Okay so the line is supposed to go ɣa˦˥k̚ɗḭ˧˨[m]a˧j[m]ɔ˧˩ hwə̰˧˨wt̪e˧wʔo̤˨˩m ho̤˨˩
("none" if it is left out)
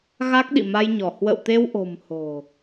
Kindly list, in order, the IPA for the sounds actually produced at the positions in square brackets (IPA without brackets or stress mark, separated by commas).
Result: m, ɲ